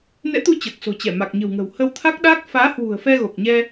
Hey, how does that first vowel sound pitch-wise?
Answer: rising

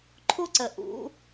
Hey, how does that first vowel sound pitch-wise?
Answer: high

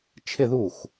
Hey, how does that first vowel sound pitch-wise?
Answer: falling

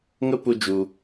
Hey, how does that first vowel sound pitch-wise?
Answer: high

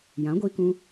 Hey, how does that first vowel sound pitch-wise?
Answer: rising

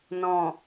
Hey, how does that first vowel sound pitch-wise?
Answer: low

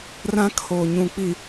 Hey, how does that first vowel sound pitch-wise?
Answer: high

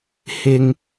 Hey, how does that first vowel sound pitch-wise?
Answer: low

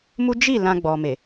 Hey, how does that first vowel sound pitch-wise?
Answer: high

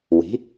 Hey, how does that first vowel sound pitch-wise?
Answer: rising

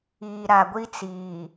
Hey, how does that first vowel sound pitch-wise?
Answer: low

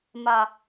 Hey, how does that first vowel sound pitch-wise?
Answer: low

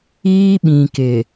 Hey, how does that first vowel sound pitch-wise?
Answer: high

